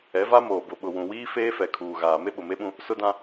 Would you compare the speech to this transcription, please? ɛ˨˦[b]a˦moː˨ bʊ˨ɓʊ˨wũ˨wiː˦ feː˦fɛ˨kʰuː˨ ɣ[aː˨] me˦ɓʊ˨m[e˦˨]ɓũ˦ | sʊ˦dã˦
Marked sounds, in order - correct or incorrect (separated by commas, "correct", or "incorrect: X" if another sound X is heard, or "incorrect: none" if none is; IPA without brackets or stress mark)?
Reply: incorrect: v, correct, incorrect: e˦